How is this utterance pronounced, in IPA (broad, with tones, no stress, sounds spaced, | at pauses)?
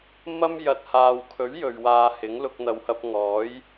m ɐ˥ m j ɐ˨ t̚ h aː˨ w kʰ ɵ˨˥ ɥ j ɵ˨ ɥ w aː˧ h ɪ˨˥ ŋ l ʊ˧ k̚ n̪ ɐ˨ w h ɐ˧ p̚ ŋ ɔː˨˥ j